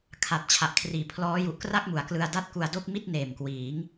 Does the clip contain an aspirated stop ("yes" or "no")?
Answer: yes